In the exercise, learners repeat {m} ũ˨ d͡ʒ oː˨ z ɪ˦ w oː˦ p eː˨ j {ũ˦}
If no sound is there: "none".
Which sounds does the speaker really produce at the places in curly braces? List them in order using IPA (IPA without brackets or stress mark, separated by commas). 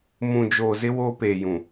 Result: m, ũ˨